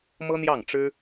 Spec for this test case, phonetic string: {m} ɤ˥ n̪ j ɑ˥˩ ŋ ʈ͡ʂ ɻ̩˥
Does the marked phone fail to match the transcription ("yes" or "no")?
no